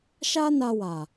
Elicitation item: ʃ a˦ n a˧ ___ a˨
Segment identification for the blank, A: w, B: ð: A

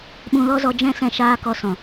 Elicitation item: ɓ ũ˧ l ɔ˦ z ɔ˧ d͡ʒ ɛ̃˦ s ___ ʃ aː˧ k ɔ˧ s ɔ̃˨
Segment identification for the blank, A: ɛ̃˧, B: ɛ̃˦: A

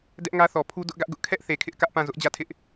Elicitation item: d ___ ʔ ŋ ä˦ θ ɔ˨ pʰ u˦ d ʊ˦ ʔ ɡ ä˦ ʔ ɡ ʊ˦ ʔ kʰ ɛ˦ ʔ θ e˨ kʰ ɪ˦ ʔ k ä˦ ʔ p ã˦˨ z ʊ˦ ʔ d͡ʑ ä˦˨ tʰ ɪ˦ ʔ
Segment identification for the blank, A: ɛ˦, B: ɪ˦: A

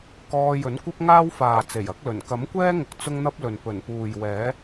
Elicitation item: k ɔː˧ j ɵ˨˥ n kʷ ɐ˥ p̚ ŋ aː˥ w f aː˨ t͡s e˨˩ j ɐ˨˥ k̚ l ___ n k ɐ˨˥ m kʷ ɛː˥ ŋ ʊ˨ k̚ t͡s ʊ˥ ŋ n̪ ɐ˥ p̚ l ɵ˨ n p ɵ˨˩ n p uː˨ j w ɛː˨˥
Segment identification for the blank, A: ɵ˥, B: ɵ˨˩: B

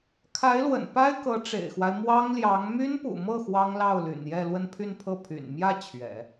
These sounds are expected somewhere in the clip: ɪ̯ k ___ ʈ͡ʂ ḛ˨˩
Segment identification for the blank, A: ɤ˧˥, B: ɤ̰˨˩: A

